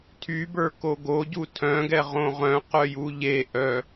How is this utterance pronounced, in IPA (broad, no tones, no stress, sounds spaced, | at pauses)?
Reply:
tʰ y b ə˞ k o ɡ o ɟ u tʰ œ̃ ɡ ɛ ʁ õ ʁ œ̃ q œ j u ʎ e ʔ œ